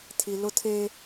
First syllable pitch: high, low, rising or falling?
low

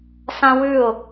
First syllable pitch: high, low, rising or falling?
high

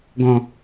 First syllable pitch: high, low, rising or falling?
low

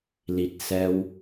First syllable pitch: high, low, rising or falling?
low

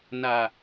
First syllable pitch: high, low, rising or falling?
low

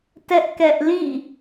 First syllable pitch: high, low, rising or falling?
high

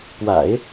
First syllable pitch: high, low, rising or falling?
low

